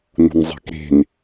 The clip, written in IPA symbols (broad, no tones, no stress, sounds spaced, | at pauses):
n ṳ n zˤ e̤ k ɾ e̤ n